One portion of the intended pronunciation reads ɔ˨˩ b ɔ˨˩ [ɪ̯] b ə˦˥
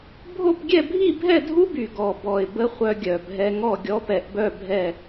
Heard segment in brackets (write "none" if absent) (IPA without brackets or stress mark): ɪ̯